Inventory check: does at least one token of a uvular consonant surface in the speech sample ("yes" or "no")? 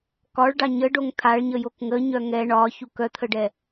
no